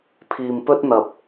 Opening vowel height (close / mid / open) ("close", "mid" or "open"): close